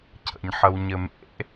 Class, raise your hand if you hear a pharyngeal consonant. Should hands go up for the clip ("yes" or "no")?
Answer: yes